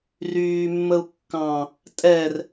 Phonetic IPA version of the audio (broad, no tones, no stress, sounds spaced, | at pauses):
r yː mː ə u̯ kː ɑ̃ | tʼ ɛ r